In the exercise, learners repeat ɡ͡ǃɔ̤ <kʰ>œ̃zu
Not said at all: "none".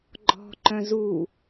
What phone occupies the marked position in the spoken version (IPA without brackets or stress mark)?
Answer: ǃ